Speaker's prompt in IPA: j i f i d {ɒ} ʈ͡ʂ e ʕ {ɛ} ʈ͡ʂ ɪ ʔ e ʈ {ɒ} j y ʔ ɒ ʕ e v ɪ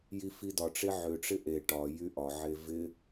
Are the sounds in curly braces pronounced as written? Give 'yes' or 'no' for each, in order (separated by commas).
yes, no, yes